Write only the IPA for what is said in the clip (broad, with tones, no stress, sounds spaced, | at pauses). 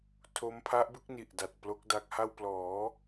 tʰ o˦˥ m pʰ a˦˥ ʔ b ɯ˦˥ k̚ n i˨˩ ʔ d a˨˩ t̚ p l o˦˥ k̚ d a˦˥ k̚ h a˥˩ w p l ɔː˩˦